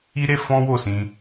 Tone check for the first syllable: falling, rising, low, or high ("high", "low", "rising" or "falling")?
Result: high